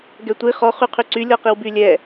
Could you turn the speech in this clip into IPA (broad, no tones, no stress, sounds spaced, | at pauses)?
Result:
ɡ ɛ tʷ i χ ɔ χ y qʰ y ǀ y lʲ ɔ q i w b y lʲ ɛ